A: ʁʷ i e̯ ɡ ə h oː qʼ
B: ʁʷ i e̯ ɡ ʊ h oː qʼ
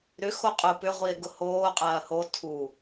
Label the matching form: B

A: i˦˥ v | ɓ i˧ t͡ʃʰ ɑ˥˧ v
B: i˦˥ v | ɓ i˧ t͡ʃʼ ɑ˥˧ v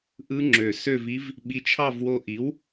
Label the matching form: A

